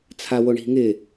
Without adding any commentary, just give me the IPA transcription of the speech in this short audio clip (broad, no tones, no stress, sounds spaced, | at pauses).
t͡sʰ a w o ɳ i̤ ŋ ɪ